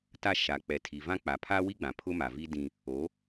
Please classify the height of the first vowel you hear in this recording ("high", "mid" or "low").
low